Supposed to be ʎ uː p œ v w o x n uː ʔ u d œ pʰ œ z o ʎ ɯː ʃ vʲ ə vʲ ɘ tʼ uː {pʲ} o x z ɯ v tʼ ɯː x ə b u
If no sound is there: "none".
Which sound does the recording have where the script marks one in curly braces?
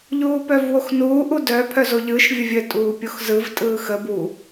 pʲ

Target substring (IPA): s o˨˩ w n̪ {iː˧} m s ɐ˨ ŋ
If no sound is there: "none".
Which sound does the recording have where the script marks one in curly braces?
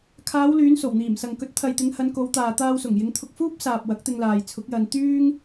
iː˨˩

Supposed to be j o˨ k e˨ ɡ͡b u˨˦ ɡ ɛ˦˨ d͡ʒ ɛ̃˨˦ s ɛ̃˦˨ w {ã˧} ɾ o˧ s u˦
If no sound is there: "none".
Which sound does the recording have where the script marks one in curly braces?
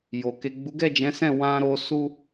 ã˧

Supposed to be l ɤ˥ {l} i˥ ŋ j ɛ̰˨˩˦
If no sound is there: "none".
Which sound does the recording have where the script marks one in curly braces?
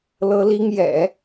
l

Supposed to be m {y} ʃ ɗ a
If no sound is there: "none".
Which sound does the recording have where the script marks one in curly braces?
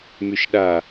y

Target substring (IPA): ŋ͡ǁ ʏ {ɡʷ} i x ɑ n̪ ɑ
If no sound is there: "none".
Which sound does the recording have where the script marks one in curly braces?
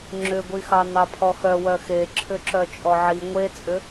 ɡʷ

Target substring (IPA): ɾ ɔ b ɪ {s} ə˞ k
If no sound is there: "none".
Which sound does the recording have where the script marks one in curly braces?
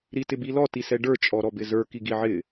z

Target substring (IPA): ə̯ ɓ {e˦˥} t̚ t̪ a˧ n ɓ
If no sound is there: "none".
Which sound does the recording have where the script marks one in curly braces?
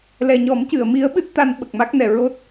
ɨ˦˥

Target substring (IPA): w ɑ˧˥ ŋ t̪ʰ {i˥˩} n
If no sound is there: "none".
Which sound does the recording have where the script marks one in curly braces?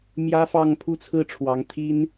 i˥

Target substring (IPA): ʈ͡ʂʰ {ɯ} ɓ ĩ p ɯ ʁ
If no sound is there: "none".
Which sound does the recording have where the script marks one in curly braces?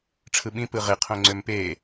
ɯ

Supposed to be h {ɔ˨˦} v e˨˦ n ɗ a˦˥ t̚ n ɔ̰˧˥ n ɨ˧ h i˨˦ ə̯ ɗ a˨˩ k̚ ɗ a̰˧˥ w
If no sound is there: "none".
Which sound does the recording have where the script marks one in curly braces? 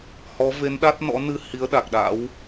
ɔ˨˦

